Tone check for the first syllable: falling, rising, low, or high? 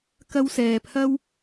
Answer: high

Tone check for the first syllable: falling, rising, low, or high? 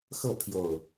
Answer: falling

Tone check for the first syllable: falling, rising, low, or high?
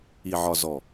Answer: low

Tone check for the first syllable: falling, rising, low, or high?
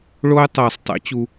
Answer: high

